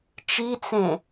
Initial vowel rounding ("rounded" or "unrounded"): unrounded